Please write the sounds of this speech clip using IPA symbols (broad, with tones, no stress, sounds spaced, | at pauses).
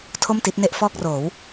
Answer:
tʰ o˥˩ m t i˦˥ t̚ n e˦˥ ʔ f ɔː˥˩ k̚ r oː˩˦ w